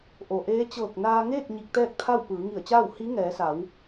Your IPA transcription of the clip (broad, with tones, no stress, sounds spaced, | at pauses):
ʔ o˩ ʔ eː˧˥ t͡ɕ ɤː˧˩ k̚ n aː˧ ŋ eː˥˨ k̚ ɲ i˧ k̚ t̪ ɛː˥˨ k̚ t̪ʰ a˥˨ w p ɯː˩˧ ŋ i˧˩ ə̯ t͡ɕ aː˥˨ w h i˧˥ ŋ ɛː˩˧ s a˩˧ w